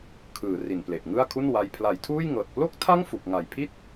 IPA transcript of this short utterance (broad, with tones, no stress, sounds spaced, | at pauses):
kʰ ɯː˩˦ r i˨˩ n p l e˨˩ ʔ ŋ ɯ˥˩ a̯ kʰ u˥˩ n w a˧ j pʰ l a˨˩ j tʰ uː˥˩ j ŋ ɤː˨˩ t̚ p l o˥˩ k̚ tʰ a˥˩ ŋ f u˨˩ k̚ ŋ a˨˩ j pʰ i˥˩ t̚